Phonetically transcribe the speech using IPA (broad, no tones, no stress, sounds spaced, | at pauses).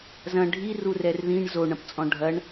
z ɐ̃ ɖʱ i r u r ɛ r ð ĩ ɳ z o ɳ ɐ̃ p t͡sʼ ɔ̃ ɖʱ ɐ ɳ